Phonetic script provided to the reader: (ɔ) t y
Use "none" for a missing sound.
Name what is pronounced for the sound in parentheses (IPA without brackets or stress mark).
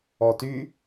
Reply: ɔ